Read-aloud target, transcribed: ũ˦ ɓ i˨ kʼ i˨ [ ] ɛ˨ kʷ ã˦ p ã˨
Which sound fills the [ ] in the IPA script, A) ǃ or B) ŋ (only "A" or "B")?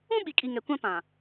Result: B